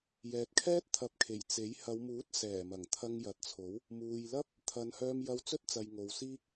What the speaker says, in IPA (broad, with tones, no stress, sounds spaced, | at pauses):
j ɛː˨ t̚ kʰ ɛː˥ t̚ t̪ʰ ɐ˨˥ p̚ kʰ e˨˩ j t͡s e˨˥ j h ɐ˨˧ w m uː˨˥ t̚ s ɛː˨˩ m ɐ˨˩ ŋ t̪ʰ ɐ˧ ŋ j ɐ˨ t̚ t͡sʰ o˨˥ w | m uː˨ j l ɐ˥ p̚ | t̪ʰ ɐ˨˧ n h œː˧ m j ɐ˧ w t͡s ɵ˥ t̚ t͡s ɐ˨ j ŋ o˨ w s iː˥ k̚